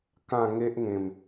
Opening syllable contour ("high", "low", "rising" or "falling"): falling